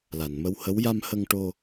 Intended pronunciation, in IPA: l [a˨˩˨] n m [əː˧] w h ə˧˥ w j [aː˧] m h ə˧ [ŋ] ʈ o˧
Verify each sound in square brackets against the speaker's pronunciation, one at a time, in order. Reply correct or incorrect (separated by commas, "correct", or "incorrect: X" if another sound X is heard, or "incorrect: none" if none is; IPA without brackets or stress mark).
correct, incorrect: ə˧, incorrect: a˧, correct